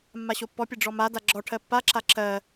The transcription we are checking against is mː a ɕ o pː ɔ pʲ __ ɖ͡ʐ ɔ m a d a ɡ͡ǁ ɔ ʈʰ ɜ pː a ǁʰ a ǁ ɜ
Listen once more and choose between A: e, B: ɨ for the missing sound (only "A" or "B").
A